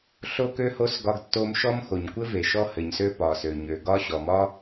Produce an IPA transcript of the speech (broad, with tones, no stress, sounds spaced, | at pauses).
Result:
ɬ o˥ k ø˥ h o˥ s ɡ ɒ˥ ɡ tː o˥ m ʃ ɔ˥ m x o˩ ɲ kʷ ɘ˥ v e˩ ʃ ɔ˥ h ɘ˩ ɲ s ø˥ p ɒ˩ s ø˩ ɲ ø˩ ɡ ɒ˥ ɕ ɔ˩ m ɒ˥